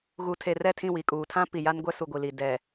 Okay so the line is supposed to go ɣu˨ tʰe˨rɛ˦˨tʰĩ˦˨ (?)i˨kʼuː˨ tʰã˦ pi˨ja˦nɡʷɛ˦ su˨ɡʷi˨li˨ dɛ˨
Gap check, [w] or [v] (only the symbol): w